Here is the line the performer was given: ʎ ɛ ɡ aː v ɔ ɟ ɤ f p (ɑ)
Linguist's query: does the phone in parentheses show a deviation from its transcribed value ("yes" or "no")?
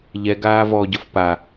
yes